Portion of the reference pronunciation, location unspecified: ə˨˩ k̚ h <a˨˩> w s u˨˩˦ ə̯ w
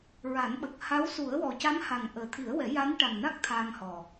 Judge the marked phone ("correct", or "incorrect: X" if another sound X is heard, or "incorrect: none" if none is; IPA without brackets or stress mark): incorrect: a˧˥